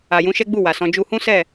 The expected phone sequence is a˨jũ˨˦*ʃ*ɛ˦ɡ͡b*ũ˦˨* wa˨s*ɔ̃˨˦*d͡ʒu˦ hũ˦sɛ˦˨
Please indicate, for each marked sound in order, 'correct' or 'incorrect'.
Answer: correct, incorrect: u˦˨, correct

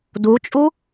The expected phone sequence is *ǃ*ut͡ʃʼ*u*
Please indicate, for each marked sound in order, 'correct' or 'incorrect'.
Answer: incorrect: d, correct

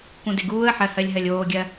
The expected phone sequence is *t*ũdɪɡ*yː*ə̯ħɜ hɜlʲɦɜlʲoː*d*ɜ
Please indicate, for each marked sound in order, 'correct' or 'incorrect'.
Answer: incorrect: k, incorrect: uː, incorrect: ɡʲ

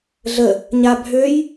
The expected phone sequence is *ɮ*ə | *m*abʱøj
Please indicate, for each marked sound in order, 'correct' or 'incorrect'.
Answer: correct, incorrect: ɲ

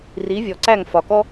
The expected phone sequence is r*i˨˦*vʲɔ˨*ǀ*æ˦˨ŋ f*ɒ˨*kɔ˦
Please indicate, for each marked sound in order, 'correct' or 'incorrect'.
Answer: correct, correct, correct

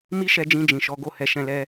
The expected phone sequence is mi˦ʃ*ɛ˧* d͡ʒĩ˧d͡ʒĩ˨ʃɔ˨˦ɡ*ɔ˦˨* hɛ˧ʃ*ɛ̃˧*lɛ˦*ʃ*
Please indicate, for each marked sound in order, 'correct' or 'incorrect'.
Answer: correct, incorrect: o˦˨, correct, incorrect: none

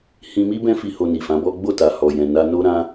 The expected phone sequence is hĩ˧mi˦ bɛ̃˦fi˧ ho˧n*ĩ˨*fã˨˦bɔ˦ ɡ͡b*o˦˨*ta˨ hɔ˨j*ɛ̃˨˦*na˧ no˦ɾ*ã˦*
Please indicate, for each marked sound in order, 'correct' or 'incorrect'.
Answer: incorrect: i˨, correct, incorrect: ɛ̃˨, correct

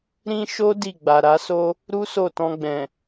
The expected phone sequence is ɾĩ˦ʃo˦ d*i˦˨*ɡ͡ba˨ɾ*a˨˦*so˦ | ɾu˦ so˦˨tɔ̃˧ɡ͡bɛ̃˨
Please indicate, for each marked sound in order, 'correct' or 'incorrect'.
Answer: correct, correct

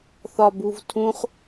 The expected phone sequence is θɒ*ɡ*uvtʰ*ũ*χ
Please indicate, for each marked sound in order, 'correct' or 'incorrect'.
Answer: incorrect: b, correct

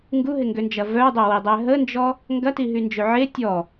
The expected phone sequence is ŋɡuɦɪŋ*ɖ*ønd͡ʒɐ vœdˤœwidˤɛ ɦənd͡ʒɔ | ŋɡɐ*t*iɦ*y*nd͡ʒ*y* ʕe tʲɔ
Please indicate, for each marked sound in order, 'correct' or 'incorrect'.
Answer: incorrect: ɡ, correct, correct, incorrect: ø

